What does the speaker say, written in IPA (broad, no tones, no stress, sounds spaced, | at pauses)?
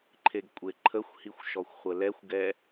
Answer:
ǃʰ e ɡ kʷʼ e ǃʰ ə xʷ h i xʷ ʃ ɔ xʷ χʷ ə l ɛ xʷ ɡ ɛ